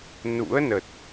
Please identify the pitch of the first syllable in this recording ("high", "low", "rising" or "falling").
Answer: rising